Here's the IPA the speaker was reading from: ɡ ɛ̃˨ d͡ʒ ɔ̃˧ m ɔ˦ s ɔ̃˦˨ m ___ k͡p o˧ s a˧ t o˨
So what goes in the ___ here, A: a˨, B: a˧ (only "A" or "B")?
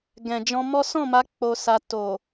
B